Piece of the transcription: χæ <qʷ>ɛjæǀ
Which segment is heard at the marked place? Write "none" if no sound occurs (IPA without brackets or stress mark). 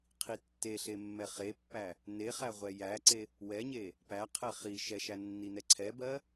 ʁʷ